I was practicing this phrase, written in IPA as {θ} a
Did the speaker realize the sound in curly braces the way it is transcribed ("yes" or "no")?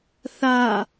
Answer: yes